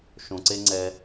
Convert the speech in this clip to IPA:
ʃõ˨ǀe˦ŋ͡ǀɛ˧

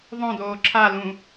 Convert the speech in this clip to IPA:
ðˤõdoː ǁʰalũ

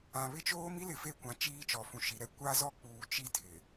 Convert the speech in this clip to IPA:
ã˨βɪ˦t͡ʃoː˦ mi˦lɪ˨ fe˦˨kʷã˨ t͡ʃiː˦ t͡ʃɔ˨fũ˨ʃi˨˦ɾɛ˦ kʷa˦zɔ˦k͡puː˨ t͡ʃi˦tʰɪ˨

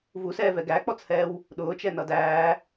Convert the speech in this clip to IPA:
vusɛːvɛ ɡæk͡pɔt͡shɛːw | ɗʊːt͡ʃɛnʌ dæː

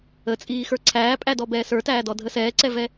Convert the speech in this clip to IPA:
ət͡sʼiːxə˞ ǀʰæːpʼædɔ bɛːsə˞tæːdɔ dʱəsɛːǀɛvɛ

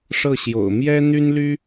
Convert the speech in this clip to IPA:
ʂɤ˥˩ ɕjo̰˨˩ʊ̯mjɛ˥ n̪y˥nly˥

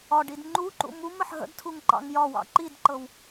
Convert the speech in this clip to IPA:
ɒɖid ŋ͡ǃuǃṵ muməħ ɦə̰dtʰuŋ ǃɑ̰ŋjɒwɑ̰ ǃidǃɤw

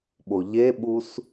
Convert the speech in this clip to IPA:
ɓoʎeɓus

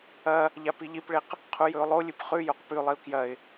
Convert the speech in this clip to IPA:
ɐ | ʎapiʎipɭeq | qʰujɵʊ̯lˠolʲɨp χʉ joqpʉlˠiʊ̯ kjɐɪ̯

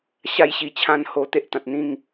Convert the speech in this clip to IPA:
ɕa˥˧jɕi˧t͡ɕʰã˥˧n ho˧t̪e˦ʔt̪ã˨t̚n̪ĩ˥˧ŋ

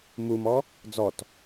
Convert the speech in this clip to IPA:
mumɔ | d͡zɔt

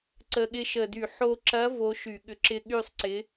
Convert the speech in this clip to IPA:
ǀə˨˩ɠɪ˧ʃə˨˩dy˧˩˧ ħo˧ǁɐ˧˥ vo˧˥ʃy˧˩˧ɠʏ˧˥ǁɪ˥˧ ɠy˥˧sˤǀɪ˧˥

